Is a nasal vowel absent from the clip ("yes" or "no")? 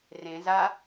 no